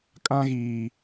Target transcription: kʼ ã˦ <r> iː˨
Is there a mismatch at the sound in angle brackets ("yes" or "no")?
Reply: yes